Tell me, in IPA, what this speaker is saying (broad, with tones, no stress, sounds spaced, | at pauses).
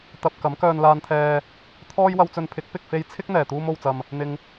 t̪ ɐ˨ p̚ k ɐ˨˥ m k œː˧ n l aː˧ n t̪ʰ ɛː˧ | t̪ʰ ɔː˥ j w ɐ˧ w t͡s ɵ˧ n pʰ ɪ˨˥ k̚ p ɪ˨ k̚ f e˧ j t͡sʰ ɪ˥ k̚ n̪ ɛː˨˩ t̪ uː˧ m o˨ w t͡s ɐ˨ m | n̪ ɪ˨ ŋ